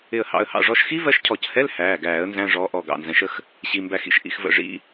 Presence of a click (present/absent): absent